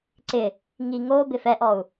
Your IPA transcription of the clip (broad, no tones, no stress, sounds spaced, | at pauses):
ǀ ɪ | ŋ i ŋ o b ɪ f ɛ ʔ ɔ u̯